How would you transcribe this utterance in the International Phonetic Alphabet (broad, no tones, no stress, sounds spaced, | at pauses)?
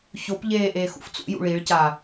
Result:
ç o p ʎ eː ʔ eː x ṵ f t͡s ṵ j ṵ ɭ i ɭ c a